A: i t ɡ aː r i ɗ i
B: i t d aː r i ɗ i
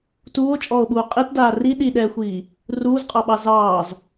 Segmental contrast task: B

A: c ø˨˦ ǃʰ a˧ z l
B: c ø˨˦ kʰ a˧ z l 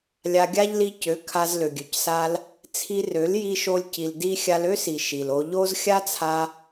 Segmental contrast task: B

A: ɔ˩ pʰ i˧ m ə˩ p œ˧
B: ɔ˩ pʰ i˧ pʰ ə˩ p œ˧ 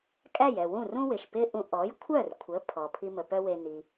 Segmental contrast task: A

